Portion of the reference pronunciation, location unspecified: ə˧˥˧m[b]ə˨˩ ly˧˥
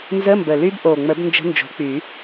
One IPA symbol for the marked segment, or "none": b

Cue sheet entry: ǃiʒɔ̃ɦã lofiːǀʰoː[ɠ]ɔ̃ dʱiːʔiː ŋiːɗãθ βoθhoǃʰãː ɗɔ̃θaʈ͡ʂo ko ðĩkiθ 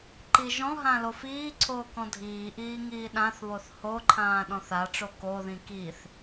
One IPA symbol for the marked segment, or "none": k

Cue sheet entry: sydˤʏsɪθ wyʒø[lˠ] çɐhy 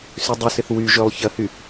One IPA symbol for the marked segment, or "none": lˠ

